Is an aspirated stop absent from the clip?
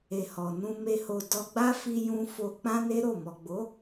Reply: yes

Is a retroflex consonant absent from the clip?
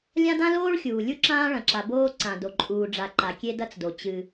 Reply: no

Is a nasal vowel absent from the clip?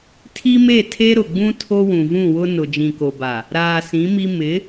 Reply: no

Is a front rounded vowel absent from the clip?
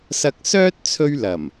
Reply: no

